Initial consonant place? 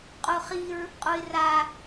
uvular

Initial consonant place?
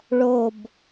retroflex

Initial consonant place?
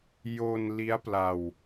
palatal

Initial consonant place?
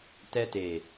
alveolar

